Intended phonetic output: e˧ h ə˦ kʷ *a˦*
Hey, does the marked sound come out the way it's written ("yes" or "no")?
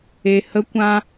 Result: no